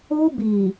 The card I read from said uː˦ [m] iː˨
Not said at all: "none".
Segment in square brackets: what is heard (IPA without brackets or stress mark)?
b